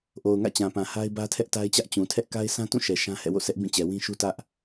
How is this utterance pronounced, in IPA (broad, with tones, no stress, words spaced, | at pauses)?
ʔo˨ʊ̯ŋä̰˦˨t͡ɕã˨pã˨ ha˦ɪ̯bä˦tʰɛ˦ʔ ta˦ɪ̯t͡ɕä˦ʔ t͡ɕũ˨tʰɛ˦ʔ ka˦ɪ̯sʰã˦tũ˦˨ ʃɛ˨ ʃã˦ hɛ̰˦˨wo̰˦˨sɛ˦ʔ bĩ˦˨t͡ɕɛ˨wĩ˦ʃu˦ tä˦ʔ